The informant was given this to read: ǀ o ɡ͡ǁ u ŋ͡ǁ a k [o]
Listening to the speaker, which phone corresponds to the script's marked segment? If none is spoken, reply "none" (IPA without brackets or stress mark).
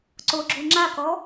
ɔ